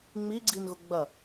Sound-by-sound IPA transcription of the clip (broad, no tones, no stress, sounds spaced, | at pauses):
ŋ͡m i ɡ͡ǀ i n ɣ ʊ ɡ͡b ɐ